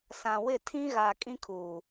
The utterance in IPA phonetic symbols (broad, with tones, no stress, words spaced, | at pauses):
sã˨wɪ˦˨ tʰĩ˦ ɣa˨ kʼĩ˦kʰuː˨